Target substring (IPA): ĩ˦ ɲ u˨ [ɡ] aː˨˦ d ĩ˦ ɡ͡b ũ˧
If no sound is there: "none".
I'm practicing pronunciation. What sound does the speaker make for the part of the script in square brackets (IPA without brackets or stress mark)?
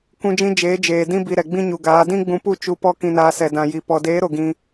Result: ɡ